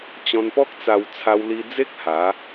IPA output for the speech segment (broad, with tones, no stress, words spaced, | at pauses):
t͡ɕɔ̃˧npɔ˦k̚t͡sa˧w t͡sʰa˧wli˧d͡ze˦k̚ ha˨˦